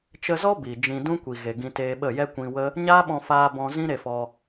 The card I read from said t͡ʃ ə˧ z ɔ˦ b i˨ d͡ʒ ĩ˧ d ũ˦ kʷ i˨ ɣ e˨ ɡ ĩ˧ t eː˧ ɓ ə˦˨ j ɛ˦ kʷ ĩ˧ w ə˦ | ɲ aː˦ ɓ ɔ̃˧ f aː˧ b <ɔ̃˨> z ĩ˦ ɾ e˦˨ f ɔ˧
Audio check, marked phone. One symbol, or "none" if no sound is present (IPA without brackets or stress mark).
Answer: ɔ̃˧